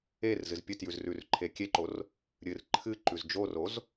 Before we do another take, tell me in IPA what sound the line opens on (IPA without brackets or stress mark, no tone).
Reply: e